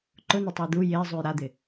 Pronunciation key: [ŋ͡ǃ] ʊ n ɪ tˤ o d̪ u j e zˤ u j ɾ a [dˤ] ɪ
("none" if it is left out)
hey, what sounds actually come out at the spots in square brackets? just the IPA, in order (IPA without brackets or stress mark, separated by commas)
ǃ, d̪